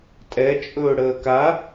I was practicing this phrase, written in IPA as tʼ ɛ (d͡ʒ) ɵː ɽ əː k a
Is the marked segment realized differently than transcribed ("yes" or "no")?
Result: yes